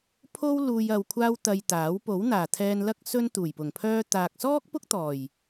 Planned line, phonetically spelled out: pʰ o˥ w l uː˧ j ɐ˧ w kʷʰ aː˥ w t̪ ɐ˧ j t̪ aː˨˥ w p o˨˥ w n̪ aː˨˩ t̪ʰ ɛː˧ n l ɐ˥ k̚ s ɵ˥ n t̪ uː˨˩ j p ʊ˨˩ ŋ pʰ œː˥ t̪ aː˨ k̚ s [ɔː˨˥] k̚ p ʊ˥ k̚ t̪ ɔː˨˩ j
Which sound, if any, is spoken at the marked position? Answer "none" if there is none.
ɔː˥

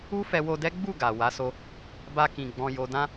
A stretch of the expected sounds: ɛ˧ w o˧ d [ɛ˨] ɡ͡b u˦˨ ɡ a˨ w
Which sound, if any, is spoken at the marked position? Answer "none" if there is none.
ɛ˦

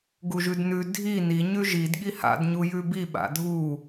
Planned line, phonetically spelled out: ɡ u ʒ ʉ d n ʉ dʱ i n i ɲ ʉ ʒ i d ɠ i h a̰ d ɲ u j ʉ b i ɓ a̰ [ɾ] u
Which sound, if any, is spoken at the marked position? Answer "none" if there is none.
dʱ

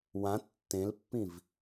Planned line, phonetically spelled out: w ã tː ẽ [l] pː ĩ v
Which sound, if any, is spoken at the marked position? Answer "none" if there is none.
l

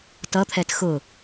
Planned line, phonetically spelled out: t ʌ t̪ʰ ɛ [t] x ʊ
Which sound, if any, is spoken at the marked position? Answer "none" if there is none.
t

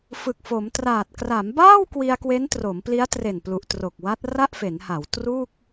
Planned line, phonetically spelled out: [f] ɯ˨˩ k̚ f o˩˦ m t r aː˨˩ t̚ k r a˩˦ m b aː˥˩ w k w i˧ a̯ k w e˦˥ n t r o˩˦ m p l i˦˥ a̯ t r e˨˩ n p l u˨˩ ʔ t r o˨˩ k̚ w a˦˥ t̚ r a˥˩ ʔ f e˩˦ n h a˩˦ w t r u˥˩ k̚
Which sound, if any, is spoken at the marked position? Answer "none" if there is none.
f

